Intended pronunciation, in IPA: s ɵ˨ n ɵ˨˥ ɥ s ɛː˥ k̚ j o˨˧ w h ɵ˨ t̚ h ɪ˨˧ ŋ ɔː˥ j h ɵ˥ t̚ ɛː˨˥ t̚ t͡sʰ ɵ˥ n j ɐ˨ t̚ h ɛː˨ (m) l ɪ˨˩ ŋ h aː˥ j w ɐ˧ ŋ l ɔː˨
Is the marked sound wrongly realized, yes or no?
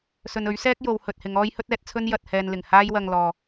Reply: yes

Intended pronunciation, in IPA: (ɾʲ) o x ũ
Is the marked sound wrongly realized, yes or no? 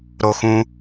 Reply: yes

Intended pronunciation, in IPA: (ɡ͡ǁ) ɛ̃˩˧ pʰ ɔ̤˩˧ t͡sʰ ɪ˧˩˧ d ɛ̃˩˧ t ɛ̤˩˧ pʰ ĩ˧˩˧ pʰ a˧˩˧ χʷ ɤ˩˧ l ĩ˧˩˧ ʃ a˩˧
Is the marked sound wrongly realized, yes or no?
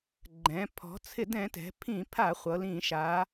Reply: yes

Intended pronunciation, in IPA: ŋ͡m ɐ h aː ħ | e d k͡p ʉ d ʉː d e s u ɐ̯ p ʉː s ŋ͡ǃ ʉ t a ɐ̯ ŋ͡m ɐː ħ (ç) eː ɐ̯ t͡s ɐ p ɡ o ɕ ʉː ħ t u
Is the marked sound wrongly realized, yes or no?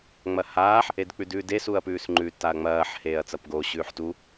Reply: yes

